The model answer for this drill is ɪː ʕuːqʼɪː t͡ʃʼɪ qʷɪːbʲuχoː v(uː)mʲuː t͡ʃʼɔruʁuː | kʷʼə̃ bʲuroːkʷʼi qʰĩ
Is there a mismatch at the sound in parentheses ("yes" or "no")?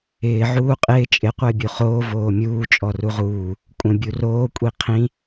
yes